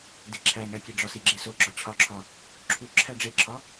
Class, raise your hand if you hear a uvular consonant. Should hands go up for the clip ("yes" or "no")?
no